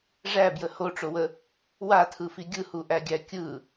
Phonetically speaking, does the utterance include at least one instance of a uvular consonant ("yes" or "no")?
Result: no